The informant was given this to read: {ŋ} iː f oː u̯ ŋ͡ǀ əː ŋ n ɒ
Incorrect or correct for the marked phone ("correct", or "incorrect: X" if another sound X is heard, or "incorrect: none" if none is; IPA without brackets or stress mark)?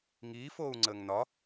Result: correct